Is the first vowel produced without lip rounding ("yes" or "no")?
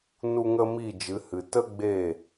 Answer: no